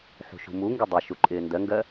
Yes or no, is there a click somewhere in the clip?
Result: yes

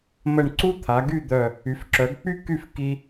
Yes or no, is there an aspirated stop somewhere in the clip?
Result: yes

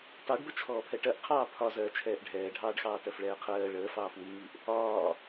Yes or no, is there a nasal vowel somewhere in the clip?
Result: no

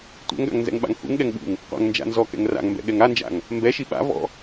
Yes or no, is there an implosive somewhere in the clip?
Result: yes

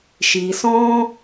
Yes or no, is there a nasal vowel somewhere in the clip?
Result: yes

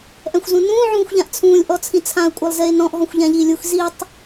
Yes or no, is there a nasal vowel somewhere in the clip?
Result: yes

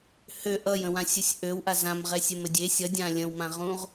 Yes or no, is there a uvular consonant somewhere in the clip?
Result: yes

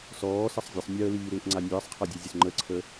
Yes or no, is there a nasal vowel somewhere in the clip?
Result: no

